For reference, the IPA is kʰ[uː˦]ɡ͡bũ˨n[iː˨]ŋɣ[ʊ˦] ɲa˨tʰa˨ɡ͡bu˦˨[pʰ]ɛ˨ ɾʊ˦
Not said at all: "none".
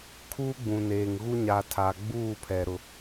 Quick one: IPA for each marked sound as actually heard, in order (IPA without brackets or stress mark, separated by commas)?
uː˦, eː˨, u˦, pʰ